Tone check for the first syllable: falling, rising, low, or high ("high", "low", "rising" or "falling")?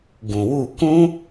low